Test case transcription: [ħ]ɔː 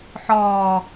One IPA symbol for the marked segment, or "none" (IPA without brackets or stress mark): ħ